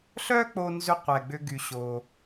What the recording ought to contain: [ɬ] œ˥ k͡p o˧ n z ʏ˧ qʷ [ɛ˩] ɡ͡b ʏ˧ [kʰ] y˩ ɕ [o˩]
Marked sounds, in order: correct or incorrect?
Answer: correct, correct, incorrect: ɡ, correct

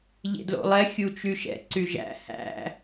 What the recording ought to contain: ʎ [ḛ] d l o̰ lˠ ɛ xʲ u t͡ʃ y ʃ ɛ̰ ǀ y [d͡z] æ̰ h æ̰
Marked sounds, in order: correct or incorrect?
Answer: correct, incorrect: ʒ

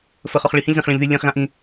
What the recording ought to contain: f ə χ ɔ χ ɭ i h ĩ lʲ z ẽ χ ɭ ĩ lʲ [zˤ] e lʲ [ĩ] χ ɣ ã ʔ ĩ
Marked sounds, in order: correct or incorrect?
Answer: incorrect: ð, incorrect: ẽ

